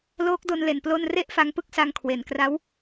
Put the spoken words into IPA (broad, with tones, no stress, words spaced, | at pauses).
loː˦˥k̚do˧nle˨˩n plo˥˩n re˥˩ʔfa˧ŋpɯ˥˩k̚sa˧ŋ kʰwe˨˩nkra˦˥w